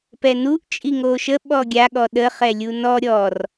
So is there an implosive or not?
yes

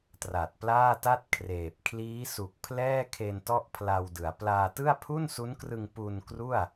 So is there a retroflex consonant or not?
no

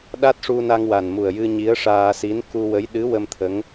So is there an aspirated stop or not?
yes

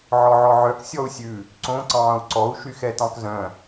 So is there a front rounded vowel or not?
yes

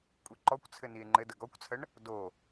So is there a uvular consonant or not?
no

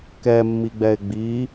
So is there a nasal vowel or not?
no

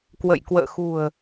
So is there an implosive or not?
no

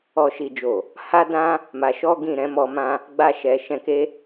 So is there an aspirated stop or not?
no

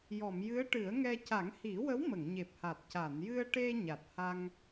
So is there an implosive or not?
no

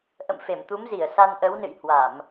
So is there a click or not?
no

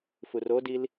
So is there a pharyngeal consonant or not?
no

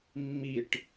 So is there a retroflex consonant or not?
yes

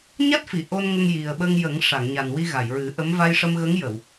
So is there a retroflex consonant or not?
yes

